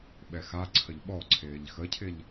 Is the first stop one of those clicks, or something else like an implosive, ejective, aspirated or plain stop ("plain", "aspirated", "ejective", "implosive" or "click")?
implosive